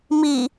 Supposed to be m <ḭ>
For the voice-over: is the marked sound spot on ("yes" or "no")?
no